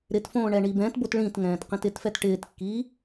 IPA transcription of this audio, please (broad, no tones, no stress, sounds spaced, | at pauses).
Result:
ɾ ɪ t f õː ɳ ɛ ɳ i b ɛ̃ t b o t ɭ ĩ t ŋ ɛ̃ː t q ĩ t ɪ t f ɛ t ʈ ɪː t kː iː